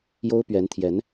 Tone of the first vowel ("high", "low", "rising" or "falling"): high